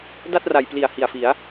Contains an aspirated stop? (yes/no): no